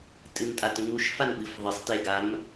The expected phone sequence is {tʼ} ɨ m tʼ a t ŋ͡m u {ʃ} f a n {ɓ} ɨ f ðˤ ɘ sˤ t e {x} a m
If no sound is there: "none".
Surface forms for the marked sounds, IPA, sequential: tʼ, ʃ, ɓ, ɡ

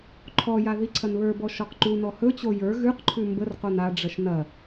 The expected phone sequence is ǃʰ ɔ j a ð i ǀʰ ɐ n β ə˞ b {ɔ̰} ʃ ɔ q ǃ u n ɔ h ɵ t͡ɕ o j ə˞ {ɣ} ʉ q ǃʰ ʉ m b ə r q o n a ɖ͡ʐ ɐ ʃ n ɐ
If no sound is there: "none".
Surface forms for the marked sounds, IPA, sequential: ɔ, ɣ

